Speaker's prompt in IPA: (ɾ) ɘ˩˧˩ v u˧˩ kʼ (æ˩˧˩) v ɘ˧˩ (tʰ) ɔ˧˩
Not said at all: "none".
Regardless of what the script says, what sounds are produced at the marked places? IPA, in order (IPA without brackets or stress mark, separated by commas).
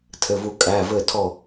tʰ, æ˩˧˩, tʰ